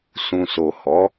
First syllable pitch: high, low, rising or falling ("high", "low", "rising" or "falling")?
low